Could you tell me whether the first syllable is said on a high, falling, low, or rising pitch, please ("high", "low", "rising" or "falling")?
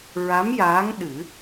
rising